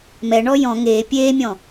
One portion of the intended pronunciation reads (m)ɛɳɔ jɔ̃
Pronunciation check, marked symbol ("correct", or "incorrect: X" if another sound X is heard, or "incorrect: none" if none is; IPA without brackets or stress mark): correct